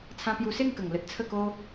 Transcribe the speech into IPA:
t͡sʰ ã˧ p j u˧ s e˥˧ ŋ k ə˨˩ ŋ l ə˦ t̚ t͡sʰ ə˥˧ k o˦

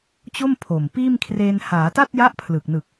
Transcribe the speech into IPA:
t͡ɕ o˥˩ m pʰ o˨˩ m p iː˥˩ m kʰ r eː˧ n h aː˩˦ t a˥˩ t̚ j a˦˥ ʔ pʰ l ɯ˨˩ k̚ n ɯ˨˩ k̚

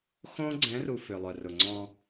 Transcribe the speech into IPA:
x õ˦ ɡ͡ǀ ɛ̃˨˦ r u˨ f ʏ˨ lˠ œ˨ r ʊ˨ ŋ͡ǀ ɔ̃˦

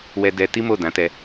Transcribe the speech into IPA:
w ɛ˧ d ɛ˧ t i˦ m o˦˨ d ã˨˦ t ɛ˧

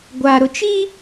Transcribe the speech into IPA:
ɡʷ a˨ ɾ ʊ˨ t͡ʃ i˦

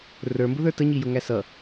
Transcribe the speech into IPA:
r ə˞ m b ʊ ð ə˞ t ə ɲ i j ʊ ŋ æ s ʌ

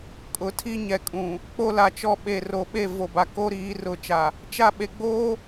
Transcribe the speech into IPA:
kʼ ʊ˨ tʰ i˦ ɲ ɛ˨ kʼ ũ˨ | k͡p o˦ l a˨ t͡ʃ ɔ˦ ɓ e˨ r o˨ ɓ e˦˨ v o˨ b a˨ k o˦ ɾ iː˨˦ r ʊ˨˦ t͡ʃ a˨ | t͡ʃ a˦˨ ɓ e˨ ɡ͡b oː˦

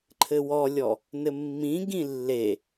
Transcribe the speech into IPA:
ǃʰ ɘ w ɔ lʲ ɔ | n ɘ mː ĩ ɡ ĩ lː e

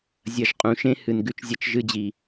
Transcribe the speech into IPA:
zʲ ɐ˧ ʒ qʼ ũ˨˦ ʃ ẽ˦ h ɨ˨ n ɡ ʉ˦ t͡ʃ zʲ ɐ˦ t͡ʃ ʒ ɨ˧ d͡ʑ i˨

